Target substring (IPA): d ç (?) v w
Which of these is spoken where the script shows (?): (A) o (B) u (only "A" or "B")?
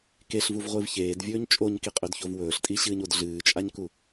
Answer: A